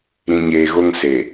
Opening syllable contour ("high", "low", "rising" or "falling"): low